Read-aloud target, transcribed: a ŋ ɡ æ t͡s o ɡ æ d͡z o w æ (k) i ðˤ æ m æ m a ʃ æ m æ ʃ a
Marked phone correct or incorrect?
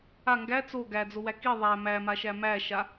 correct